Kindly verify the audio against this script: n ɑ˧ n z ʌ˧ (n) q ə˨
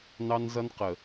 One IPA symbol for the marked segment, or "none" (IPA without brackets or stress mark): n